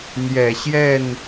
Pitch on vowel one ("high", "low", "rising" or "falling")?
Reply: low